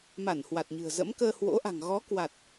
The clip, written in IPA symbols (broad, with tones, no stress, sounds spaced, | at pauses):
m a˧˩ n h w a˨˩ t̚ ɲ ɨ̤˨˩ ə̯ z ə̰˧˥ m k əː˧ h w o̰˧˥ ʔ a̤˨˩ ŋ ɣ ɔ˨˦ k w a˨˩ t̚